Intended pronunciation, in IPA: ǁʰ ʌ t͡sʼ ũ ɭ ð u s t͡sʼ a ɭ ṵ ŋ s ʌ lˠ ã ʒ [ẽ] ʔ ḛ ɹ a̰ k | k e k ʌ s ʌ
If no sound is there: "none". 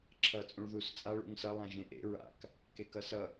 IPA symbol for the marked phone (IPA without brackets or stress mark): ẽ